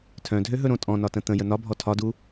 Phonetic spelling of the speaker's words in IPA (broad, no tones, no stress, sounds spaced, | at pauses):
tʰ œ̃ dʱ ø ɦ ɵ ɾ õ tʼ ɔ̃ n ɒ t ə̃ t̪ ə̃ j ə n ɒ bʱ ɔ tʰ ɒ d u